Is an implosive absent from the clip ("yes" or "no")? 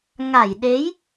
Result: no